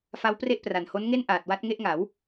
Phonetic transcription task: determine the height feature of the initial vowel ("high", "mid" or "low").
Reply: low